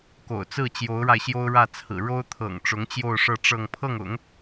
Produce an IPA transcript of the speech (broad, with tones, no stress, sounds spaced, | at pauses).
k o̰˨˩ ʊ̯ t͡s ɹ̩˥˩ t͡ɕ j o˧˥ ʊ̯ ɻ a˧ ɪ̯ ɕ j o˥ ʊ̯ ɻ ä˥˩ t͡sʰ ɹ̩˨˩ ɻ o˥ ʊ̯ t̪ʰ ɤ̰˨˩ ŋ ʈ͡ʂ ʊ˧˥ ŋ t͡ɕ j o˥˧ ʊ̯ ʂ ɤ˥˧ ʈ͡ʂ ɤ˥˧ ŋ pʰ ɤ˥˩ ŋ ʊ̰˨˩˦ ŋ